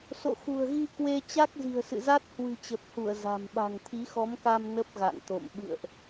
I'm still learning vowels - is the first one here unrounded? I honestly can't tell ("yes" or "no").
no